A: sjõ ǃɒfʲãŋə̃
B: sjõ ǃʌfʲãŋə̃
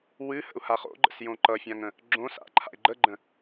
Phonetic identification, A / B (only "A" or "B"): B